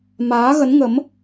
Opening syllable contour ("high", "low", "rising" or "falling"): rising